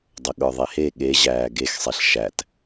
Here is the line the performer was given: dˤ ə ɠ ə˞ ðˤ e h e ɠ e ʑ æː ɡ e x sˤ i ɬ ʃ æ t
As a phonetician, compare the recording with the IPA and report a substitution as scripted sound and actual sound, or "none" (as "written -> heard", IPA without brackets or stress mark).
none